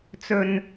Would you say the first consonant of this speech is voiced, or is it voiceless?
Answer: voiceless